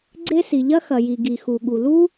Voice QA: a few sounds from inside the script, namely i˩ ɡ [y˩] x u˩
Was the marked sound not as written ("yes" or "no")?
yes